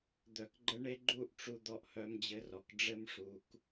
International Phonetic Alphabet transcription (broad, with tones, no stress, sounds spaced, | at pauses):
d̪ œ˧ k ɡ͡ǃ ə˦ ɳ e˦ ɡ͡ǃ u˦˨ ʔ ʈ͡ʂ u˧ d̪ ɔ˧ ʔ h œ˧ m d͡ʑ ɘ˧ r ɔ˨ k ɖ͡ʐ ɘ˧ m ʂ u˨ k